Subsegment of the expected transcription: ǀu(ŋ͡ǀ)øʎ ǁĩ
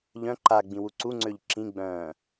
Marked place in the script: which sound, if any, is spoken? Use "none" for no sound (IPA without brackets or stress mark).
ŋ͡ǀ